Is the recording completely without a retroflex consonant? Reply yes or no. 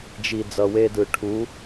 no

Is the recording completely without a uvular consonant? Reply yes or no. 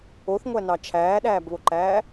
yes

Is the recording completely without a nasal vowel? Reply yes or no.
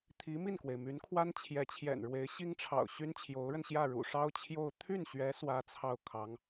yes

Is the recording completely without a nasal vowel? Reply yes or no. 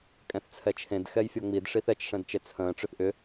no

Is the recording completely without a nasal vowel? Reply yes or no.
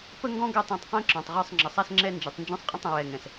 no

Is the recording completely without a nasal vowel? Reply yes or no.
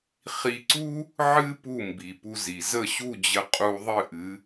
yes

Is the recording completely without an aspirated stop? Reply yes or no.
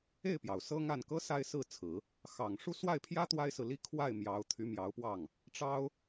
no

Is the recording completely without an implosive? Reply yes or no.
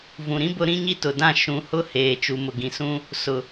yes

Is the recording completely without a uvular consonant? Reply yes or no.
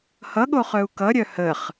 no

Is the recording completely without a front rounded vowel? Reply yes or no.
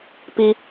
yes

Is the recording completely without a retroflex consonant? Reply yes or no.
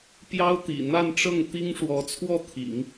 no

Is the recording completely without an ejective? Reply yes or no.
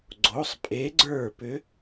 no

